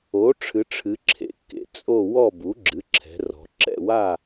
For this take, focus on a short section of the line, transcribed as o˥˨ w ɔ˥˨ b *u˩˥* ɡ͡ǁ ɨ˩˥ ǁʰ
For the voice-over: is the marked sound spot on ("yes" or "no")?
yes